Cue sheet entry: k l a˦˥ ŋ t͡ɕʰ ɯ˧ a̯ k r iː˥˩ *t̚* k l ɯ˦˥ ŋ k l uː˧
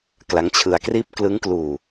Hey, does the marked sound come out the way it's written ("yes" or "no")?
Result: no